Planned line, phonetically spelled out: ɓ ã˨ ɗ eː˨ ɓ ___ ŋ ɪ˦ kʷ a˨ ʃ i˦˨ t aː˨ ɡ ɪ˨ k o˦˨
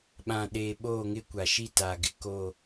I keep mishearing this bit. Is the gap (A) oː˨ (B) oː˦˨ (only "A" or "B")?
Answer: B